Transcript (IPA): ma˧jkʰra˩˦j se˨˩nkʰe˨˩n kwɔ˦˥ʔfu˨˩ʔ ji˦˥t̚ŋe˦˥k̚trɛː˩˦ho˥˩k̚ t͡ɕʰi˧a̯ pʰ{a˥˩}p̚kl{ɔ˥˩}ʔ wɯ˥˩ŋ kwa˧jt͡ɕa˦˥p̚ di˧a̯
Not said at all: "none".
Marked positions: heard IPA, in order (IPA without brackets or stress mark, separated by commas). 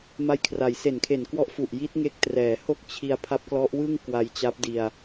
a˦˥, ɔ˦˥